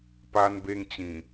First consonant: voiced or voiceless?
voiceless